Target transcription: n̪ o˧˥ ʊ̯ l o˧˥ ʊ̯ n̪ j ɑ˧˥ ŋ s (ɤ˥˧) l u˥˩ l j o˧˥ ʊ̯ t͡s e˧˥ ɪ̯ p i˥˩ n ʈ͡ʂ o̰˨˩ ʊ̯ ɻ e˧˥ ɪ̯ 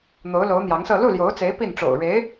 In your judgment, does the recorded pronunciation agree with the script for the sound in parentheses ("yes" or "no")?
yes